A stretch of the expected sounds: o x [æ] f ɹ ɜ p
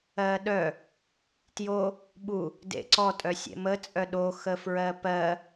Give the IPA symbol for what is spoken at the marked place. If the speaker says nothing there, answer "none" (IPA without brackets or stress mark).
ə